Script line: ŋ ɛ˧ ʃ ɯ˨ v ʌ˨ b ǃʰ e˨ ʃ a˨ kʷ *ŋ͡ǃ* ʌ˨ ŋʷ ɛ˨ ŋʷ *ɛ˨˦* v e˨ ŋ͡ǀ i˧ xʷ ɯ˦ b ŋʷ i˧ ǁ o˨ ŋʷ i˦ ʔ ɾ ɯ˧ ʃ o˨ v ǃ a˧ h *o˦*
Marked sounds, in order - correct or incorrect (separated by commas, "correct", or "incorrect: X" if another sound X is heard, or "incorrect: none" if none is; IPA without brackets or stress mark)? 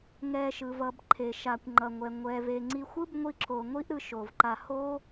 correct, incorrect: ɛ˨, correct